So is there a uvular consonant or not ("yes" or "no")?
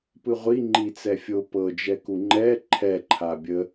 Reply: yes